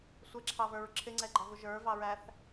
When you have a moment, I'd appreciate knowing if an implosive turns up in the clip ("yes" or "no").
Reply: no